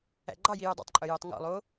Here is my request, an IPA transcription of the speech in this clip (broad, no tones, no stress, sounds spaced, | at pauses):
æ̰ ɡ͡ǃ ɑ j i j œ dˤ ɛ̰ tˤ ǃʼ œ j o tˤ ŋ ɔ̰ lˠ o